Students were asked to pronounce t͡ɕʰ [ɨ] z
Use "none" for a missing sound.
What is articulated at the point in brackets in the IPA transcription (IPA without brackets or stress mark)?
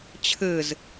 ɨ